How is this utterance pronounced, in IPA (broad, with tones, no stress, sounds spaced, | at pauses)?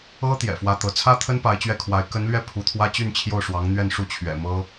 ɤ˥ t̪ j ɛ̰˨˩ f w ä˥ t̪ ɤ˧˥ t͡sʰ ä˥ t̪ʰ ə˥ n p a˧˥ ɪ̯ t͡ɕ ɥ ɛ˥˩ kʰ w a˧˥ ɪ̯ k ə˧˥ n l ɥ ɛ˥˩ pʰ u˧˥ t̪ʰ w ä˥ t͡ɕ y˥˧ n t͡ɕʰ j o˥˩ ʊ̯ ʂ w ɑ˧˥ ŋ n̪ ɥ ɛ˥˧ n ʂ u˥˩ t͡ɕʰ ɥ ɛ̰˨˩ m ɤ˥